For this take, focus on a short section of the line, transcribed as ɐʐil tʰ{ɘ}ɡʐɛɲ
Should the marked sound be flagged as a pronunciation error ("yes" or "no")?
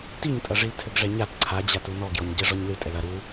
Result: no